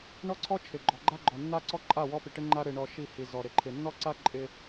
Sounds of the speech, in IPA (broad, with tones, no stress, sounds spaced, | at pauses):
ɳ ɔ˦ ǀʰ ɔ˦ t͡ʃʰ ɪ˨ ɡ͡ǃ ɔ˨ ɡ͡ǃ a˦ ɡ͡ǃ ɔ˨ nː a˦ ǀ ɔ˦ ǃʼ a˦˨ w ɔ˦ p i˨ ʈ ɪ˦ ŋ͡ǃ a˦ ɾ ɪ˨ ɳ ɔ˨ ʃ i˦˨ h i˨ z ɔ˨ ɾ ɪ˨ ǃʰ ɪ˨ nː ɔ˦ ǀ a˦ ǃʼ ɪ˦